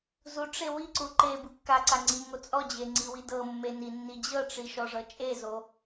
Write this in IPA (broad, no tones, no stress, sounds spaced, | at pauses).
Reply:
z u ʈ͡ʂ e w i ǀ u ǃ e b ɯ kː a ǀ a ŋ͡ǀ i ŋ o t͡sʼ ɔ d͡ʑ e ŋ͡ǀ i w i d ɤ mː e n i nː i d͡ʑ ɤ ʈ͡ʂ i ʃ ɔ ʐ ɤ t͡ʃʼ e z o